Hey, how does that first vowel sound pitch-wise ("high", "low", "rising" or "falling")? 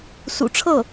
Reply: low